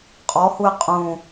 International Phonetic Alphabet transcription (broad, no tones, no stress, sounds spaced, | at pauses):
qʼ ɔ h u ɪ̯ qʼ ũ